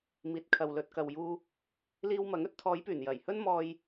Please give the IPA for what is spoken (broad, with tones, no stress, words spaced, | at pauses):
miː˨t̚kʰɐ˨w lɵ˨t̚kɐ˨wjuː˧ | liː˧w mɐ˨˥ŋɵ˥t̚ t̪ʰɔː˨˧jpyː˨˩njɐ˨˩jhɵ˥n mɔː˧j